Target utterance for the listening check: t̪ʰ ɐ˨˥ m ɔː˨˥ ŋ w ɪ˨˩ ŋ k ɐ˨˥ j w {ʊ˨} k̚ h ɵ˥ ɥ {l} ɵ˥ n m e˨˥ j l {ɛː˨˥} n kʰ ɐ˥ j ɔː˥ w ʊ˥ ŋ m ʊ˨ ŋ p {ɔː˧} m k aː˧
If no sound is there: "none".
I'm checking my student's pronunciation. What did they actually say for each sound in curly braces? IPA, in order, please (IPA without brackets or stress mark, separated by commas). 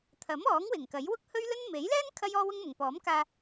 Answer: ʊ˥, l, ɛː˥, ɔː˨˥